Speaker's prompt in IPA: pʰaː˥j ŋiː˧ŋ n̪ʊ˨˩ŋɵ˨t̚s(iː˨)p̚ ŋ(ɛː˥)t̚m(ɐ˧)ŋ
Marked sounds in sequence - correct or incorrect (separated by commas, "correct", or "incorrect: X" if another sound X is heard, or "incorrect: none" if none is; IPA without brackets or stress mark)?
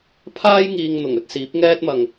incorrect: iː˨˥, correct, incorrect: ɐ˨